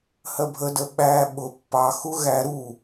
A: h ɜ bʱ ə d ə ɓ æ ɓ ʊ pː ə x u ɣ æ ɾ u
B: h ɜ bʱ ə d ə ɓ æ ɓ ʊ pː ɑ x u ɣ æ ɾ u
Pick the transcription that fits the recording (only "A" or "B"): B